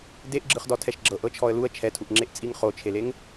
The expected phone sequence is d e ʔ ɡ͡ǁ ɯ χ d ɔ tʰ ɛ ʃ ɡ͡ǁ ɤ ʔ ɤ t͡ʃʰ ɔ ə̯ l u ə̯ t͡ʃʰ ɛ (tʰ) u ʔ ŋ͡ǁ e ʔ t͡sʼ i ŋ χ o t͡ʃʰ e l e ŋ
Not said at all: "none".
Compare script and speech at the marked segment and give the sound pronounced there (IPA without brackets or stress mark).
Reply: tʰ